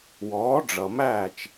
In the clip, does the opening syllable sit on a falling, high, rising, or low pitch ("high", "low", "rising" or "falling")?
rising